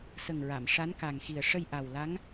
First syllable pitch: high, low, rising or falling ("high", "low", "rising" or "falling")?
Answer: low